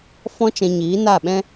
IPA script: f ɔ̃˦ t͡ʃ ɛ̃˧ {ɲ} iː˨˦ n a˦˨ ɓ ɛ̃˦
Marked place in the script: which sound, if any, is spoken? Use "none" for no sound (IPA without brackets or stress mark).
ɲ